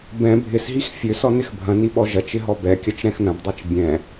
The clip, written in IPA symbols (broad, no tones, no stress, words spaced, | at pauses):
bɛ̃ bʱɪsɦix fʲøs ɔnɪxbʱɐ̃ni ɓɔʒɐt͡ʃɪ ɦɔbɛkʲɐt͡ʃ ɾɛ̃xnɐ̃bdˤit͡ʃ bʲɛ̃